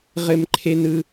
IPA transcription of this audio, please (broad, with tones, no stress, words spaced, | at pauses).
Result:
ʁɘ˧mǃʰe˧nɯ˧